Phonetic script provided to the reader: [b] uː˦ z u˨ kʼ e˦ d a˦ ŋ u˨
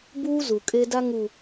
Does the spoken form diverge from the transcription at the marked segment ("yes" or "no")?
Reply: no